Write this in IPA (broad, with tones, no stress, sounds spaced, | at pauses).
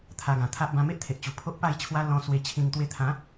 t̪ʰ a˧ ɡ ã˨˩ t̪ʰ a˦ ʔ b ã˧ m e˦ ʔ t̪ʰ e˨ ʔ t͡ɕ u˨˩ pʰ o˦ ʔ p a˥˧ j t͡ɕʰ w a˦ l ɔ̃˧ s w e˧ t͡ɕʰ ĩ˧ ŋ t̪ w e˧ t̪ʰ ã˨˦